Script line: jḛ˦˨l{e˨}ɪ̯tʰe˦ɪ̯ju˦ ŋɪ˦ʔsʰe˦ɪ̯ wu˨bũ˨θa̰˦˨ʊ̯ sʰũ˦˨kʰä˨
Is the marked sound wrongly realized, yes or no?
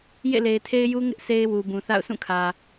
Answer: no